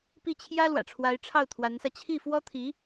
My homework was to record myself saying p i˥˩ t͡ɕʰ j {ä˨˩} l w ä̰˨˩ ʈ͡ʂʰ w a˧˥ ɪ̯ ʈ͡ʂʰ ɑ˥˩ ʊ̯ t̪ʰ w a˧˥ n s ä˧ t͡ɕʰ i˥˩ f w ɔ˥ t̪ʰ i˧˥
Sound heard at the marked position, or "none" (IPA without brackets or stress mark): ä˥